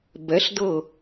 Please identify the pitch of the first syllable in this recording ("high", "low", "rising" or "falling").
rising